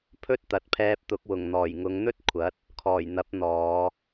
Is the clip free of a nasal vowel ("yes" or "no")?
yes